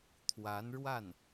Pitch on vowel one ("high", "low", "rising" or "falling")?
rising